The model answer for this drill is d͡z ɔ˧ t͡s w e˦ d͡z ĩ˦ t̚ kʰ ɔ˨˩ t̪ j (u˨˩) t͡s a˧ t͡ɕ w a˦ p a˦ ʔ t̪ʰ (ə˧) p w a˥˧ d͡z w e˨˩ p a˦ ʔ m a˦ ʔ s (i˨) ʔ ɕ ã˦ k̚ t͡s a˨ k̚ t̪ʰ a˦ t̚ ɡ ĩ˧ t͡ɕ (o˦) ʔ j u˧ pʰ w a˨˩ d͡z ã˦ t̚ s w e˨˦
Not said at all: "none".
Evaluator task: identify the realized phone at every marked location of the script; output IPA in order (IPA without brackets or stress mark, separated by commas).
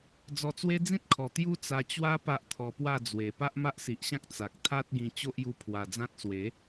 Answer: u˦, ɔ˧, i˨, o˦